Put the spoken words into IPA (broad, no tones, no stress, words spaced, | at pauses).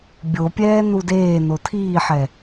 bʲopʲɛː nudeː notʰiːħɛ